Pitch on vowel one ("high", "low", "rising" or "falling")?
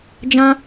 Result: high